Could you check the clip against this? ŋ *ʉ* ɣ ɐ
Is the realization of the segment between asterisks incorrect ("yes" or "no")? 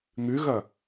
no